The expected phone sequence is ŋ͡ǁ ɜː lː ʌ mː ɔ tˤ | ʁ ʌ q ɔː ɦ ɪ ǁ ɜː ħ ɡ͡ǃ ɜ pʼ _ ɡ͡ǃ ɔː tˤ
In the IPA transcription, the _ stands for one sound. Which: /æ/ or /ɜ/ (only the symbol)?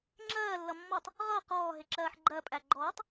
æ